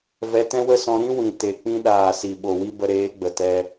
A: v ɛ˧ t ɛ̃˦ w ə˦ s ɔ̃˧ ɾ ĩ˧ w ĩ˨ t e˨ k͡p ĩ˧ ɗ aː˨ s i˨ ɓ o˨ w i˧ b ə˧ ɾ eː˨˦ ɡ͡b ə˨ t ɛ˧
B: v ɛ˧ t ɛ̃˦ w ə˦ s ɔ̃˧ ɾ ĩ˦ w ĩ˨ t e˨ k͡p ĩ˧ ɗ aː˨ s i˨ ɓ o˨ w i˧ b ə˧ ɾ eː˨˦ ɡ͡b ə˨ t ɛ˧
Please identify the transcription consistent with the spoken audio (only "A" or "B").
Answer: B